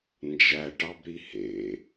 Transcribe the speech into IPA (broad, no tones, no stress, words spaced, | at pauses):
nd͡ʒæʈɑbɾi hḛ